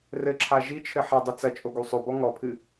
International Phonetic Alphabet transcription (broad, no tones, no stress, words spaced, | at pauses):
rɘǁʰa ʒit͡ʃʰɘ ħɐdˤɨ t͡sɐt͡ʃʼo ɡusˤobɔ ŋɔpʰɨ